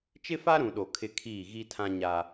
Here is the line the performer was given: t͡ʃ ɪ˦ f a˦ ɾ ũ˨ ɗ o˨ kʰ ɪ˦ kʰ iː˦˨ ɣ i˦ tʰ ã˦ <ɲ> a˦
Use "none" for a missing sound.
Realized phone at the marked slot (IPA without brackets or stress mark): ɲ